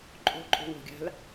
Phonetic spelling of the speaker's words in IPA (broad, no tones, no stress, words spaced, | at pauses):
ǃʼo̤ǃʼo̤wo̤ɡʲa̤l